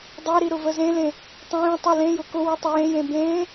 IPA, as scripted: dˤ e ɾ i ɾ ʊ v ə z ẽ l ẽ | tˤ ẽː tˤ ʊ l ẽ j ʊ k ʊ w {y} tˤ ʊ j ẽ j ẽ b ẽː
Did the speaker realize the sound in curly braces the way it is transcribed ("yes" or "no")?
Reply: yes